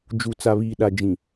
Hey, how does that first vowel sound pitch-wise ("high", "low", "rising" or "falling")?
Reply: low